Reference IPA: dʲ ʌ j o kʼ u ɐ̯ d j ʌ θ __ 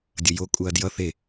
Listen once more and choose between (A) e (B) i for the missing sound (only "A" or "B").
A